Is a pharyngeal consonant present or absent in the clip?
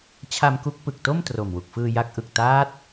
absent